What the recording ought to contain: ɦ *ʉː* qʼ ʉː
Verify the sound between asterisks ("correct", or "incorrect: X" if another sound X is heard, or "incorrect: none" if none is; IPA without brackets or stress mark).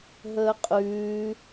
incorrect: əː